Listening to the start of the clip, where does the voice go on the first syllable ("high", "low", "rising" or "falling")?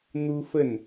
high